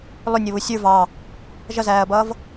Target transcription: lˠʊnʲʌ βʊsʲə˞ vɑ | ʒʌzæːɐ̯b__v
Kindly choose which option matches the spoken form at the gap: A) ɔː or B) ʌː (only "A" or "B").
B